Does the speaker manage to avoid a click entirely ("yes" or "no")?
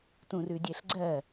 no